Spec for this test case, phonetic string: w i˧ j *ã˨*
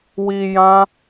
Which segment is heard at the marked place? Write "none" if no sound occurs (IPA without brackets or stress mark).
ã˦